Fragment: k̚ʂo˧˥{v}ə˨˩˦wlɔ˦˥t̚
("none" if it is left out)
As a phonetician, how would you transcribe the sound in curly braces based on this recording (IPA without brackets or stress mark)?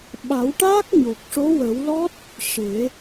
w